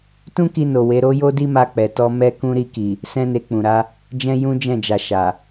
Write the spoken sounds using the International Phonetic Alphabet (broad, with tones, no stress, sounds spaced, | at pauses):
t ũ˦ k i˧ n o˨ w e˨˦ ɾ o˦ j o˦ d i˦ m a˧ k͡p ɛ˨ t ɔ˧ m ɛ˦ k ũ˦ ɾ i˧ k i˨ | s ɛ̃˦ n e˧ k͡p ũ˨ ɾ a˨˦ | d͡ʒ ɛ̃˦ j ũ˦ d͡ʒ ɛ̃˦˨ d͡ʒ a˨ ʃ a˨